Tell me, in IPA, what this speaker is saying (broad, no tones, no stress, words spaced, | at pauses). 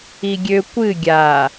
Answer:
iɡʲø kʷɨ ɡʲa